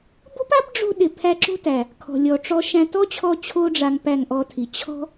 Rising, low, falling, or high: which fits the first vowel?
high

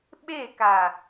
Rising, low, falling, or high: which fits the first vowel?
falling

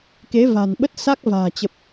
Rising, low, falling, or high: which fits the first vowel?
rising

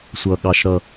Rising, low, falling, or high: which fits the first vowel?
low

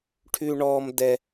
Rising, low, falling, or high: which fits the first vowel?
high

